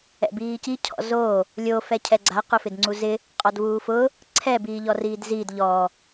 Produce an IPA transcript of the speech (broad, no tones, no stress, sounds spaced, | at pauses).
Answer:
ɛ̰ b iː c i cʰ ɔ̰ z o | lʲ o f ɛ cʰ ɛ ɡ͡ǀ a q ʊ f ɪ d ŋ͡ǀ u z ɪ | qʼ ɔ d v uː f ʊ | ǀʰ ɛ b iː ʎ ɔ r iː d z iː d ʎ ɔ